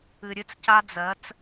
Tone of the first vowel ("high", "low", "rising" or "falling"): low